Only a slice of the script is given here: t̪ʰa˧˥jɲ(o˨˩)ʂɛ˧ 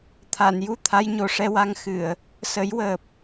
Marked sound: correct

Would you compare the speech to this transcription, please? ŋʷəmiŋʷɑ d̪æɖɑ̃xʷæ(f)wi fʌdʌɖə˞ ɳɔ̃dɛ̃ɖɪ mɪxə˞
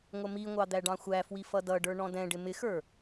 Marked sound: correct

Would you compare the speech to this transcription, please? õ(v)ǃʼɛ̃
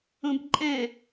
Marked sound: incorrect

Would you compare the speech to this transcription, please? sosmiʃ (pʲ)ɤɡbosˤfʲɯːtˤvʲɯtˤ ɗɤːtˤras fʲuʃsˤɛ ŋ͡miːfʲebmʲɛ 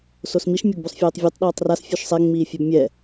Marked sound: incorrect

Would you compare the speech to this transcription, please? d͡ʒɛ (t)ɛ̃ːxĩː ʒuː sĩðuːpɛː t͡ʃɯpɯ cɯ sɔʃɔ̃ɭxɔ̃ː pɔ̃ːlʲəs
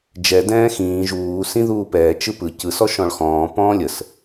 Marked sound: incorrect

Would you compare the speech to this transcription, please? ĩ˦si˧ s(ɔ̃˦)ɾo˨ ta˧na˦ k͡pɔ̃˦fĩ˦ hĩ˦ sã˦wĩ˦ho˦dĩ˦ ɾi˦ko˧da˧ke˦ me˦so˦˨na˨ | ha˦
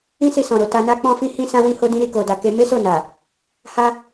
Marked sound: incorrect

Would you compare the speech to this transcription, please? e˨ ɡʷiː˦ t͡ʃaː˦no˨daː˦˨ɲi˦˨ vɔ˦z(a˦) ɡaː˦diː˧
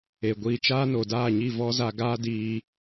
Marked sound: incorrect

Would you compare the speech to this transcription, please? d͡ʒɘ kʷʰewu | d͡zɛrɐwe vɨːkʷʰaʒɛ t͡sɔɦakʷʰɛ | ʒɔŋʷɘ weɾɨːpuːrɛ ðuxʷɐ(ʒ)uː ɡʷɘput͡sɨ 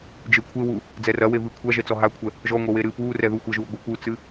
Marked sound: correct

